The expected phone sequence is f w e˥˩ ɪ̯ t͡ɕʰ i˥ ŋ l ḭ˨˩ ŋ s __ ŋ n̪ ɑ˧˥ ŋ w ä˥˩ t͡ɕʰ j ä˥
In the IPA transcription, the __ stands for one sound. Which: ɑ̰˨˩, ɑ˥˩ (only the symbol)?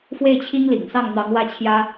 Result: ɑ˥˩